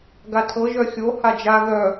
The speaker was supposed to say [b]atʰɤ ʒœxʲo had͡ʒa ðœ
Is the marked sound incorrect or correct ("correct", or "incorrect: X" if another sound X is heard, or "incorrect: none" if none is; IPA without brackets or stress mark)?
incorrect: ɡ